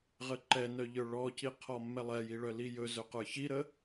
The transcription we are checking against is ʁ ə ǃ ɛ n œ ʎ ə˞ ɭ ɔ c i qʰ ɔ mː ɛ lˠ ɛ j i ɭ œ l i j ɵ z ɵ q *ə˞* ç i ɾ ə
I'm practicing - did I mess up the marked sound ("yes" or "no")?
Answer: no